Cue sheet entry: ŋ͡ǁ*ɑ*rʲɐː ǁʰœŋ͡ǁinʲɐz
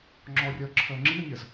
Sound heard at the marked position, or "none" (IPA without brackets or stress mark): ɔ